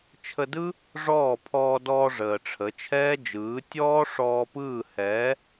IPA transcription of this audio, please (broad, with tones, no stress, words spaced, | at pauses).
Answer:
t͡ʃʰə˧dɯ˦ | ʐɔː˦˨pʰɔː˧dɔː˧ ʐəː˨ʈ͡ʂʰə˨˦t͡ʃʰɛː˦d͡ʒɯː˨˦ tʲɔː˦ ʂɔː˧pɯː˦˨ hɛː˨˦